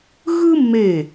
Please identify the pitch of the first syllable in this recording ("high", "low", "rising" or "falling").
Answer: high